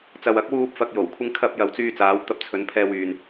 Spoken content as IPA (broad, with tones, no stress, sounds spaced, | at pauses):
t͡s ɐ˨ w ɐ˨˥ k̚ w uː˧ p̚ f ɐ˨ k̚ j o˨˩ w kʷʰ ɪ˧ ŋ kʰ ɐ˧ p̚ j ɐ˨˧ w t͡s yː˧ t͡s aː˨˧ w t̪ ɐ˧ p̚ t͡sʰ ɵ˨˧ n pʰ ɛː˧ w yː˨ n